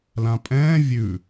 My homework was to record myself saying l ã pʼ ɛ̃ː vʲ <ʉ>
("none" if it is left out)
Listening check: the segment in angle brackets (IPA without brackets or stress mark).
ʉ